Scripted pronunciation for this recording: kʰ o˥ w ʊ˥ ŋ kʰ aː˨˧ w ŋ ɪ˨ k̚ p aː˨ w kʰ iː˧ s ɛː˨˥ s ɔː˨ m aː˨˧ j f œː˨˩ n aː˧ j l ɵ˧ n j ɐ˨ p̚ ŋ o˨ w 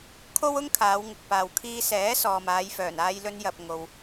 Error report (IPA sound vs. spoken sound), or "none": none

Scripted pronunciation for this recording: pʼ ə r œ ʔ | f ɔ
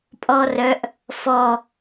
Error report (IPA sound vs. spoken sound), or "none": ə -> ɔ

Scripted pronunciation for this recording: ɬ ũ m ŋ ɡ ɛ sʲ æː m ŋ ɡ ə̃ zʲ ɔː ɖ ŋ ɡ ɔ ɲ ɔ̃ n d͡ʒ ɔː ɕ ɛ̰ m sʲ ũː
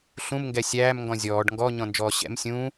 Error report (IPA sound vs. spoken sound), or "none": ə̃ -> ɔ̃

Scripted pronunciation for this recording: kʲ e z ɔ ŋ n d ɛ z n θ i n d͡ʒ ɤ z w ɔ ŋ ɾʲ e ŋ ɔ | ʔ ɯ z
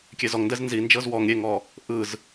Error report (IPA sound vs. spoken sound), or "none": θ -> z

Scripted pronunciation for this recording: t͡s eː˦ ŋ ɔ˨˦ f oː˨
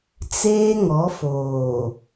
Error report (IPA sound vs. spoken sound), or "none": none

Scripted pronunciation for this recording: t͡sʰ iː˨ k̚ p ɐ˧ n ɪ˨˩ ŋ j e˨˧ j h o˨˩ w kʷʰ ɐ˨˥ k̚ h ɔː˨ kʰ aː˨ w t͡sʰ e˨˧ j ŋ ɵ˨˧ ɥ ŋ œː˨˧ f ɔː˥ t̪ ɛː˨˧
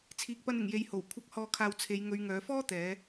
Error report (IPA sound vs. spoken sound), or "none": none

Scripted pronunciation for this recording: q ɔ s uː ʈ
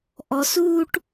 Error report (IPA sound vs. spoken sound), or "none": q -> ʔ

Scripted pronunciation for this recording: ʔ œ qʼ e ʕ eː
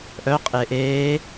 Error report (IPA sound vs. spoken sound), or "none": ʕ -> ʔ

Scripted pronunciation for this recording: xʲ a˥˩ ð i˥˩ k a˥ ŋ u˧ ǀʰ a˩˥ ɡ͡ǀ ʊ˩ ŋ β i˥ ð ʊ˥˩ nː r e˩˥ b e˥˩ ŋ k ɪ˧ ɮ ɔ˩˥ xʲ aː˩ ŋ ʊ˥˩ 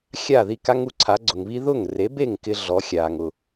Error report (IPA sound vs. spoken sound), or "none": nː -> ŋ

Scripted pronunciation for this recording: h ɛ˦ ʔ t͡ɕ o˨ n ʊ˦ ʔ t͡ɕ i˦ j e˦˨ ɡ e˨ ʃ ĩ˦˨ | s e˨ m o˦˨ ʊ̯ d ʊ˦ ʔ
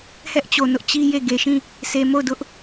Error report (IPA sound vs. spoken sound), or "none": none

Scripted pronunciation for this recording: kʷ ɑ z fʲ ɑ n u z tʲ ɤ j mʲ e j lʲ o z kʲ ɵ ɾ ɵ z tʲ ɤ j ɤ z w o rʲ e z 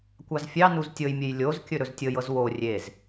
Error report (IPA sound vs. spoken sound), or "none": none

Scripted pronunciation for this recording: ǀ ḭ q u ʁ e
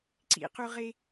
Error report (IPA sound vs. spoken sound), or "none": none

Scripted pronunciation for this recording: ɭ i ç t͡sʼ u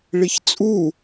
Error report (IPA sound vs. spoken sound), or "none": none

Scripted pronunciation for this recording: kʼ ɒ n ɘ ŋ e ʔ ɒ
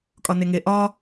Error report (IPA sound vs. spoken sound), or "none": ɘ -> e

